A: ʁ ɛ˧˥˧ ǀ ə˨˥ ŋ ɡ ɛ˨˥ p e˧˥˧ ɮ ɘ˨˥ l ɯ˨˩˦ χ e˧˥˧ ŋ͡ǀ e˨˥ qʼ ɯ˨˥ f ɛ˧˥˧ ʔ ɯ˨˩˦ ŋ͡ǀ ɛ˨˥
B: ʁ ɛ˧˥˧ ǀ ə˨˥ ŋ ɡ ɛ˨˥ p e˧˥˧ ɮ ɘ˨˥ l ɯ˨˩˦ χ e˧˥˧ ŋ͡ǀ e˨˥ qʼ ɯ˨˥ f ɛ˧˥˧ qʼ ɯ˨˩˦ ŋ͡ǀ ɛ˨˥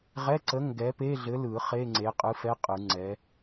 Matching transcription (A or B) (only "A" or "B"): B